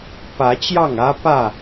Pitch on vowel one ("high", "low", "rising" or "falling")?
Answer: rising